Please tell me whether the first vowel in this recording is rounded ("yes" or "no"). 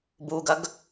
yes